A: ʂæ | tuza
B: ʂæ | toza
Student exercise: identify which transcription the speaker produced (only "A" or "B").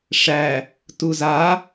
A